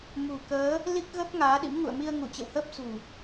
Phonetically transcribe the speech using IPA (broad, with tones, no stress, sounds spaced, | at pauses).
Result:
m ṳ˨˩ k əː˨˦ | l i˦˥ k̚ ɣ ə˦˥ p̚ ŋ aː˨˦ ɗ ḭ˧˥ m ŋ ṵ˧˨ ə̯ m i˧ ə̯ ŋ u˧˩ t͡ɕ ə̰˧˨ w h əː˦˥ p̚ s ṳ˨˩